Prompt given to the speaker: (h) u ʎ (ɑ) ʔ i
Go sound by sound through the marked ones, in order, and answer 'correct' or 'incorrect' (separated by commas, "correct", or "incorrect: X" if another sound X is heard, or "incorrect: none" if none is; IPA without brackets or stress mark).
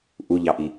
incorrect: ʔ, correct